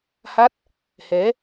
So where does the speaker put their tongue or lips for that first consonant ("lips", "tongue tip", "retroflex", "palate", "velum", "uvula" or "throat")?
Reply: throat